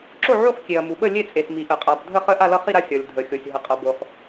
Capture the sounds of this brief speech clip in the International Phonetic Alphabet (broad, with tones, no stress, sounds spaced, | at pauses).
ǁ o˥˨ ʕ u˥˨ χ kʲ e˩ ɐ̯ m u˩ ɓ ə˥˨ lʲ e˥˨ t͡sʼ e˩ s m i˩ ʔ ə˩ qʼ a˩ b dʱ ə˥˨ χ ə˥˨ ʔ a˥˨ l ʌ˥˨ χ i˥˨ ɾ a˥˨ sʲ ʌ˩ lʲ dʱ ə˩ xʲ o˩ sʲ ɦ ə˩ qʼ ʌ˩ b o˩ χ